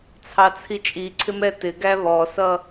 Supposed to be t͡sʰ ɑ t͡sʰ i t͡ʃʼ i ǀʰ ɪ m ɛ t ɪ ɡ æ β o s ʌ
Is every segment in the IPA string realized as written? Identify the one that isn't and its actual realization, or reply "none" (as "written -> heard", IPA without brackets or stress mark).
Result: o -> ɔ